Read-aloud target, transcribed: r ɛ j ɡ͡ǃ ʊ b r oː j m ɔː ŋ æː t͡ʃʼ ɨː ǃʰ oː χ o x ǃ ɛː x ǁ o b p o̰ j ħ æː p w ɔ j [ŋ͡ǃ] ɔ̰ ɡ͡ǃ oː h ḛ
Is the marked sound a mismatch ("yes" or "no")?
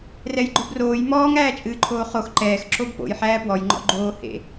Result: no